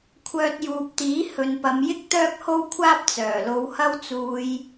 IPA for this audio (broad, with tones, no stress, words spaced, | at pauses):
kʷʰœː˧t̚juː˨p̚t̪iː˨˥ hɵ˨npɐ˨˧mjɪ˥k̚ t̪œː˥k̚ho˥wkʷʰaː˥p̚ t͡sœː˨˩lo˨˧whɐ˥w t͡suː˧j